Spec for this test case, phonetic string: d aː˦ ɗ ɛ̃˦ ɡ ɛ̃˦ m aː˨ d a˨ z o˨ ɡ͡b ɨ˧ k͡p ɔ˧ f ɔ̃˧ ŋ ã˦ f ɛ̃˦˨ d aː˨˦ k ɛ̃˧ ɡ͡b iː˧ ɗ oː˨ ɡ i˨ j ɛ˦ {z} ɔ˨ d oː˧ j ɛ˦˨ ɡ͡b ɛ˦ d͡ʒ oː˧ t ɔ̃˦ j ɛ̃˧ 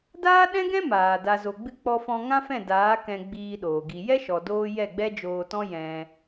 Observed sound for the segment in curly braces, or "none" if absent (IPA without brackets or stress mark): ʃ